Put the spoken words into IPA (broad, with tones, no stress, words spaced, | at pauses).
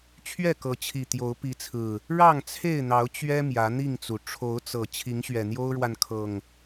t͡ɕʰɥɛ˥˨kɤ˨˦t͡ɕʰi˨˩ t̪jo˨˦ʊ̯pi˨˦t͡sʰɹ̩˨˩ | ɻɑ˥˨ŋt͡sʰe˥˨ɪ̯n̪ɑ˨˦ʊ̯ t͡ɕɥɛ˦ mjä˨˦n̪i˥˨ŋt͡su˩ ʈ͡ʂʰo˨˦ʊ̯t͡sɤ˨˩ t͡ɕʰi˨˦ŋɕɥɛ˨˩n̪jo˦ʊ̯ɻwa˨n kʰɤ˨˩ŋ